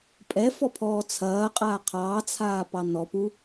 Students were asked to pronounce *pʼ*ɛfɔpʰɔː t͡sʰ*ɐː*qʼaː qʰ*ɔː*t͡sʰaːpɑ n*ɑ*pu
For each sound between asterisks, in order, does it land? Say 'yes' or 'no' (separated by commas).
yes, yes, no, no